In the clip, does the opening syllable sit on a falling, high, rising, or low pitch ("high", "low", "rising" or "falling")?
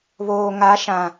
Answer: low